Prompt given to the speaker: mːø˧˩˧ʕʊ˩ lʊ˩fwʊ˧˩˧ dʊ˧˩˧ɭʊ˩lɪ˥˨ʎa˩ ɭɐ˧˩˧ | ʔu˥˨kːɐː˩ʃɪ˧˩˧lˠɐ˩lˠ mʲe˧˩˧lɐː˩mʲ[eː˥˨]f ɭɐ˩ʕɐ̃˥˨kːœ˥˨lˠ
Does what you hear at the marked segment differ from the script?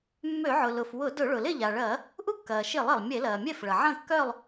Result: yes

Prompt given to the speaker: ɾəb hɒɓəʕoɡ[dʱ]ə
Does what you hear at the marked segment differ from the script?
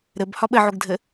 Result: no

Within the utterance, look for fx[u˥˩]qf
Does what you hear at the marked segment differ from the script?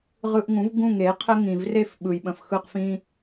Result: yes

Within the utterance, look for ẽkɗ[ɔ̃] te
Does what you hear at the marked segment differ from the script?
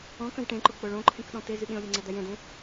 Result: no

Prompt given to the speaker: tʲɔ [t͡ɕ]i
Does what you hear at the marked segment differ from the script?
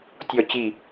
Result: no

